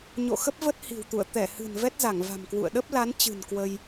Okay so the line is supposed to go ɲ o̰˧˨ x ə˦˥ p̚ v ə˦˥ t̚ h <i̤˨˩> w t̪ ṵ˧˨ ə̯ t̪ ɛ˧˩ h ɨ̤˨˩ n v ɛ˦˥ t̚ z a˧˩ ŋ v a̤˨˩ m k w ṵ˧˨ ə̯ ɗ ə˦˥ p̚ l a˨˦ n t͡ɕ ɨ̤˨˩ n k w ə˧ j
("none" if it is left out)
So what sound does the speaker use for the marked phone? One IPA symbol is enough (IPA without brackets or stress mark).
i̤˨˩